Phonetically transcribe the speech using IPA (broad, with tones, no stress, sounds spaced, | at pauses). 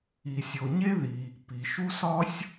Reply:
i˩ sʲ o˩ ɲ e˥ ð i˩ | p i˩ ʃ u˥ s ɒ˥ sʲ